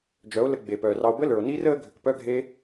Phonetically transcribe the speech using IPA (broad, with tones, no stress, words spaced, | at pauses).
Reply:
d͡ʒœ˨˦o̯ lə˧ ɡ͡be˨pœː˨rɑ˧o̯ bə˦lə˞˨o̯niː˦r əː˦ ɡʱʏ˨kpœ˦ɡʱe˦